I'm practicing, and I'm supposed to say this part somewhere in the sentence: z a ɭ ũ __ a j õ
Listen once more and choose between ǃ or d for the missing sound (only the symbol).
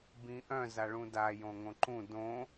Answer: d